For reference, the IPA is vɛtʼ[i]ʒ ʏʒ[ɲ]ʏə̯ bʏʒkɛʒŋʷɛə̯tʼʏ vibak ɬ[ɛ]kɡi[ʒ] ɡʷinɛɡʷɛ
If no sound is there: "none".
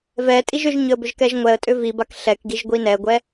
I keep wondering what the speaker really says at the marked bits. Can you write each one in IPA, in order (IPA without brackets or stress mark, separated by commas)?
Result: i, ɲ, ɛ, ʒ